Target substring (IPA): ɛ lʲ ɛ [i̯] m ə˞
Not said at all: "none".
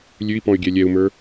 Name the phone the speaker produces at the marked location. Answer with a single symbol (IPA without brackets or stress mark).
u̯